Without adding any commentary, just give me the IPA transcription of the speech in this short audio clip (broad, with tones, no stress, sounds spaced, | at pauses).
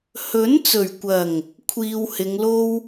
h ɵ˨˥ n t͡s ɵ˨˩ ɥ kʷ ɐ˨˩ ŋ | kʷʰ iː˧ w h ɪ˨˧ ŋ l o˥ w